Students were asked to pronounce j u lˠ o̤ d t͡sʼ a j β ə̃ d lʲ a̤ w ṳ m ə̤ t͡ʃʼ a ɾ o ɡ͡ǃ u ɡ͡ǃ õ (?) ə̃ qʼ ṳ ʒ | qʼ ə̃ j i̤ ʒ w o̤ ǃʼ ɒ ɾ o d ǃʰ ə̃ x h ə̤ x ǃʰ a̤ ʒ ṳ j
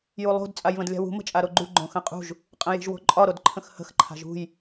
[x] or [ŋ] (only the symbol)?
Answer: x